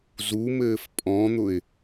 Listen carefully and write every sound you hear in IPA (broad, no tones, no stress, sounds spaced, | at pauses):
z u m ɘː f pʼ ɔ̃ n̪ ʊ ɪ̯